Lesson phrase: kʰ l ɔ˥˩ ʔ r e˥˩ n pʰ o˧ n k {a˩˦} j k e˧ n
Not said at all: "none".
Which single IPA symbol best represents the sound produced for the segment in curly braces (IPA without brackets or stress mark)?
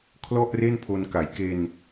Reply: a˩˦